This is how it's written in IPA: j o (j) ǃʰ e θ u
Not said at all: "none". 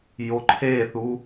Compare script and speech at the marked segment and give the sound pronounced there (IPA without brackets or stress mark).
none